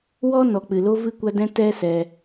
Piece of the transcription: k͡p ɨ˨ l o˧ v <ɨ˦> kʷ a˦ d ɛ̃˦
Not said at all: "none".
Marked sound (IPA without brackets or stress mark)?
ɨ˦